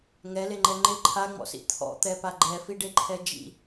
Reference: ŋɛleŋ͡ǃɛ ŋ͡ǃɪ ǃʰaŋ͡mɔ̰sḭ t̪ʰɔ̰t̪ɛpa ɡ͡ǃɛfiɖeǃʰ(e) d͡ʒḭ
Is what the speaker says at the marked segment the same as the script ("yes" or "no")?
no